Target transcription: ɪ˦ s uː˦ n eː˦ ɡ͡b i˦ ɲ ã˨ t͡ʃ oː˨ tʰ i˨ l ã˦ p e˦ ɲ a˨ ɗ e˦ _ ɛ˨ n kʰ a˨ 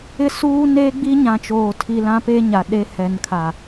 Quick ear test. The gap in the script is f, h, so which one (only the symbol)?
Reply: h